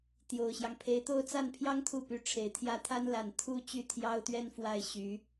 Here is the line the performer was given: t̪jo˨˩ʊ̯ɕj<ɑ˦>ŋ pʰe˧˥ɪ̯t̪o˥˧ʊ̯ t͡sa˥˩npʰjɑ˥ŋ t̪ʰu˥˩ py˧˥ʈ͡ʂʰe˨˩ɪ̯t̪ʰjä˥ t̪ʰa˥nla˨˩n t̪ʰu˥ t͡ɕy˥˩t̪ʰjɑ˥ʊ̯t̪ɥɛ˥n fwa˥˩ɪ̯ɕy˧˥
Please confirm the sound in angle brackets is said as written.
yes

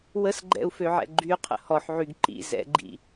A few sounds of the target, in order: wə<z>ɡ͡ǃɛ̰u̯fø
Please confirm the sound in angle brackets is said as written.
no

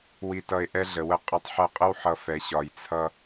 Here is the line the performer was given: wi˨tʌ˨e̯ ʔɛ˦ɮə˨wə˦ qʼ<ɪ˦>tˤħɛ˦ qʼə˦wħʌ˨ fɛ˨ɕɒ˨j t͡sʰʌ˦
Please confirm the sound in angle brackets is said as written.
yes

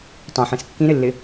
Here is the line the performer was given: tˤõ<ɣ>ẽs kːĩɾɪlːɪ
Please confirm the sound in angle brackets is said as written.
no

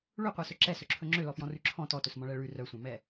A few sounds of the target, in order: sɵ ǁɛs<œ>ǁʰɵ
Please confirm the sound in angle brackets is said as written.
no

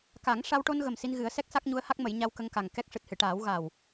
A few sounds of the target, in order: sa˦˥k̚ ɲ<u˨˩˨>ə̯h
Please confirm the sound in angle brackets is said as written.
no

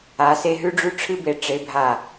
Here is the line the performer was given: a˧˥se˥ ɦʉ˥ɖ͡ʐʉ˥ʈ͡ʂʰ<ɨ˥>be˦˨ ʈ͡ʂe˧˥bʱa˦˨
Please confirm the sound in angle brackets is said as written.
yes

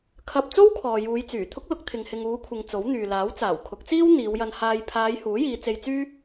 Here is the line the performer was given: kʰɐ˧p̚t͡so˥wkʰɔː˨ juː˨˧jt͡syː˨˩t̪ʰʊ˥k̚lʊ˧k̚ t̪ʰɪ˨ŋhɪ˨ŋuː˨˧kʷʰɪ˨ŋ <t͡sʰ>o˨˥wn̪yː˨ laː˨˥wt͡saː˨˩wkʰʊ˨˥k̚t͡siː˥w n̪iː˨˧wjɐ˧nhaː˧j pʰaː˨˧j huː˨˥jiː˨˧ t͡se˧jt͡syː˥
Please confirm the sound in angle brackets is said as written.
no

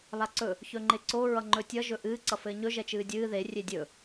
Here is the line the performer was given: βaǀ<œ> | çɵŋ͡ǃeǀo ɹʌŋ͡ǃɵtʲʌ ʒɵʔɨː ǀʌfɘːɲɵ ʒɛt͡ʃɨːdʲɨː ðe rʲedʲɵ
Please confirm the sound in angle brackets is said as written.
no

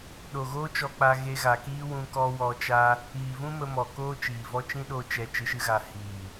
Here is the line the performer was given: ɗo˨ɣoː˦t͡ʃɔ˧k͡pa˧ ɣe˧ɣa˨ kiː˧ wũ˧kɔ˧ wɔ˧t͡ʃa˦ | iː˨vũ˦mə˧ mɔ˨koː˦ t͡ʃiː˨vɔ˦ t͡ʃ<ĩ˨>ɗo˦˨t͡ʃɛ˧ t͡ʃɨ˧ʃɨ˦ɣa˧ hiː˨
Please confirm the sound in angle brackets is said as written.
no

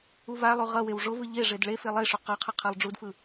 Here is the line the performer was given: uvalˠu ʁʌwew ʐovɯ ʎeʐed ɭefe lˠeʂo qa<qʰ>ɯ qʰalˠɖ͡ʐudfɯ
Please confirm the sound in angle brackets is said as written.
yes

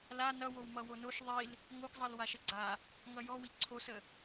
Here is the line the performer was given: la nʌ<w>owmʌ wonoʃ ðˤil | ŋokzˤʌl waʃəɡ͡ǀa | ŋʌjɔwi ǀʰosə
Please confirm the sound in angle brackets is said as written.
yes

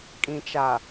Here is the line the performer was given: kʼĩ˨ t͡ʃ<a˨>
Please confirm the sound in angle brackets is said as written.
yes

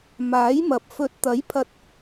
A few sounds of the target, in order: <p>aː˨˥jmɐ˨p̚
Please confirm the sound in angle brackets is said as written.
no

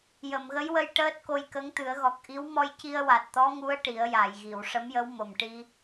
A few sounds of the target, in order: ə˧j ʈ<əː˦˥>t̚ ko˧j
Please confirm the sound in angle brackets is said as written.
yes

